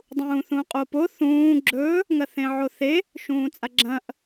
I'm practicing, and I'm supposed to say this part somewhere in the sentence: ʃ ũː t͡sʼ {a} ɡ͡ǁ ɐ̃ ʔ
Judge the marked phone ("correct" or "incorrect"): correct